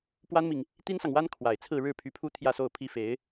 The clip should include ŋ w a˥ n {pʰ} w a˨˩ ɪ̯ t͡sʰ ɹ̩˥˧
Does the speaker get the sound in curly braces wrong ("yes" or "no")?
yes